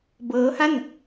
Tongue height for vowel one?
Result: mid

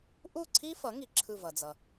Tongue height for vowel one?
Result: high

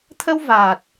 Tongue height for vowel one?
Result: mid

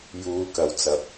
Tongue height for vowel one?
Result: high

